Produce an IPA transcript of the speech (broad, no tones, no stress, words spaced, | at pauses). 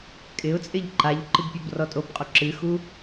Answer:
kʼɪʊ̯t͡sʼɪʎ ǃaʎǃɨb pʲobrɔtʼobqʼo ǁɨxu